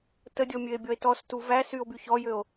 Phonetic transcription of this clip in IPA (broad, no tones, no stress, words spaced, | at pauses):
tədʲɔmʲøe̯bʲɔe̯ tɔstu væsyo̯by çɔjøo̯